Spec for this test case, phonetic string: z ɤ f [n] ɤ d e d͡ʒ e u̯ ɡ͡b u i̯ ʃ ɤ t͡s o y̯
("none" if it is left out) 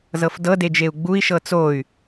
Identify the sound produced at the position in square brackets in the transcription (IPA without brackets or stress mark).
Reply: d